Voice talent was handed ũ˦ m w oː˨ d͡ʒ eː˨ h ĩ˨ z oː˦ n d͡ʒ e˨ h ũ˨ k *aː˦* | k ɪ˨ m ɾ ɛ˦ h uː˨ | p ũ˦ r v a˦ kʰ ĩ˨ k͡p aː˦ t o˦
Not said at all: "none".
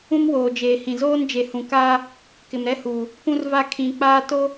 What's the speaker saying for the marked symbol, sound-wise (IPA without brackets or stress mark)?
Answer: aː˦